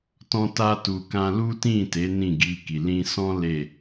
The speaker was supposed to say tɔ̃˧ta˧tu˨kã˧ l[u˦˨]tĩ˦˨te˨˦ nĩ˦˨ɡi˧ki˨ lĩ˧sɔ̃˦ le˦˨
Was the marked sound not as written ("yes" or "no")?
yes